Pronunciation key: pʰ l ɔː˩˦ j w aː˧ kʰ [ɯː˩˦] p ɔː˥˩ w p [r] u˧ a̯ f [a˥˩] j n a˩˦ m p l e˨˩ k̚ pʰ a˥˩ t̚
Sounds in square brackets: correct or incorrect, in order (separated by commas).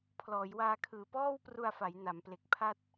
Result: incorrect, correct, incorrect